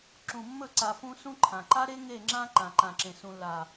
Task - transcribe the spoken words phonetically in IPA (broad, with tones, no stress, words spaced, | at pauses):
ǁũ˨mːɵ˦˨ǀa˨fũ˦ sũ˦ǃʰã˨ ǃa˦ɾe˦ ŋe˦˨ ŋ͡ǁã˦ ǃã˨ǃã˨ǁẽ˨ sũ˨lːa˨